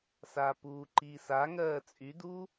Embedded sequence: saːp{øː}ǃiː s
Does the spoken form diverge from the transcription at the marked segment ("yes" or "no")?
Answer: yes